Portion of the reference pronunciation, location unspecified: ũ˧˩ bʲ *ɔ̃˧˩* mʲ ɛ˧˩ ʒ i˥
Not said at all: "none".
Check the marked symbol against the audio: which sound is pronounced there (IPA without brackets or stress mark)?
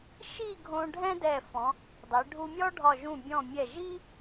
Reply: ɔ̃˧˩